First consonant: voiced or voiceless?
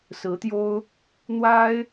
voiceless